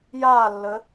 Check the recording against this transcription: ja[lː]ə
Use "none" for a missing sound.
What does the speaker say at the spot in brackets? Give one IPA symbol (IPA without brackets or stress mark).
lː